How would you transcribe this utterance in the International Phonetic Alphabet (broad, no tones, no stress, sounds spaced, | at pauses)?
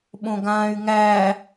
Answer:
ɓ õ ɡ ãː y̯ ŋ æ